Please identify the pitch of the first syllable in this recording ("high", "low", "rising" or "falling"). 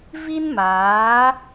high